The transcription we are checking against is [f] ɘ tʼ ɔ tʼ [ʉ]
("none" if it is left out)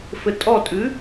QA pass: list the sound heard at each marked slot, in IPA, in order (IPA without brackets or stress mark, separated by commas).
f, ʉ